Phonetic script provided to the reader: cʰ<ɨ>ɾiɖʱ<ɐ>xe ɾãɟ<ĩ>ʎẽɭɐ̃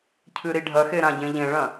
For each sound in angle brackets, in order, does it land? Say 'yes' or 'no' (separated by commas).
yes, yes, no